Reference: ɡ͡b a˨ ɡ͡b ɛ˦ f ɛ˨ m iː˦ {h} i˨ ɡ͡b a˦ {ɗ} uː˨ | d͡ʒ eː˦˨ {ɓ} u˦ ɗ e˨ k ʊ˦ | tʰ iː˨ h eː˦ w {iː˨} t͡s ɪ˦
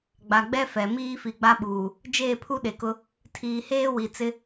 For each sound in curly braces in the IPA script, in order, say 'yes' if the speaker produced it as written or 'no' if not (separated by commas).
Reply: no, no, no, no